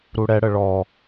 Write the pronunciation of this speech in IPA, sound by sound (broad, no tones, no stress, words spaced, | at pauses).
ɾuɽɛɽə ɭɔ